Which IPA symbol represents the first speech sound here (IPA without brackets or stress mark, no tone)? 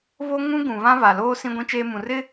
β